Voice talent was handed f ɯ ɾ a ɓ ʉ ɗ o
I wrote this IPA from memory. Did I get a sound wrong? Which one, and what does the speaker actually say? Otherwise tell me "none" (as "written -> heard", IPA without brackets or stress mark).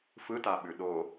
ɾ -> t